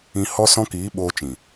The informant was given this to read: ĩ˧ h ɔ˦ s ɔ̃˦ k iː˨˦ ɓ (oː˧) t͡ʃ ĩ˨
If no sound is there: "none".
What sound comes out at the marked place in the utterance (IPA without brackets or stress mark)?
oː˧